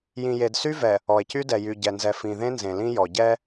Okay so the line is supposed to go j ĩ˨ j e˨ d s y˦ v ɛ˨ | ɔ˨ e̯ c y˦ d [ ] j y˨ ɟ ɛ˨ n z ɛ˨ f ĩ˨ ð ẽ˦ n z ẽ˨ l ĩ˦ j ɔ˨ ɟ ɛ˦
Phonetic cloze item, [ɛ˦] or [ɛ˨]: ɛ˨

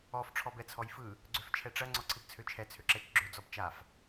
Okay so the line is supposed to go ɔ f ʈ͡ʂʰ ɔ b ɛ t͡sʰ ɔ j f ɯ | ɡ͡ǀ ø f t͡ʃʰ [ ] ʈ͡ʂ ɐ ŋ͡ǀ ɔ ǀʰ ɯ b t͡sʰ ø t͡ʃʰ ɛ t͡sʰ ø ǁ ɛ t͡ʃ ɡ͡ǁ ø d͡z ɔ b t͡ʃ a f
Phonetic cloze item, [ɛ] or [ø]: ɛ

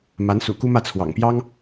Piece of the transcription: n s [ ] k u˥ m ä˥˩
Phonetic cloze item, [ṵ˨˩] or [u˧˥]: ṵ˨˩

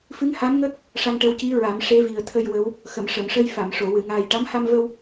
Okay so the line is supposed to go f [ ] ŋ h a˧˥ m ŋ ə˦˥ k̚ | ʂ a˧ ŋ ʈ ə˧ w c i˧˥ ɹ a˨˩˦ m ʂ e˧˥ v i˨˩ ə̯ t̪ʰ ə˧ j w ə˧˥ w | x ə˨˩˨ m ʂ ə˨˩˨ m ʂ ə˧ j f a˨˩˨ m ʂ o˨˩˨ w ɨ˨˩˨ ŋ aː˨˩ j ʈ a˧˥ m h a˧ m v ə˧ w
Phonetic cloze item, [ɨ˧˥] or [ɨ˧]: ɨ˧˥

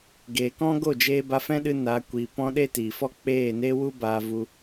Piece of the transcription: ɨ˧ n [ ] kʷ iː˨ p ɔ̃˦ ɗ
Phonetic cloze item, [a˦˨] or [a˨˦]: a˨˦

